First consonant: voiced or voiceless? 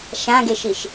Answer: voiceless